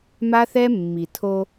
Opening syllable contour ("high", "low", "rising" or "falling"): high